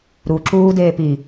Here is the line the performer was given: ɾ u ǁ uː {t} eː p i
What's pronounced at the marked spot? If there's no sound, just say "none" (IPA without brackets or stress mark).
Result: d